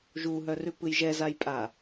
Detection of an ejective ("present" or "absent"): present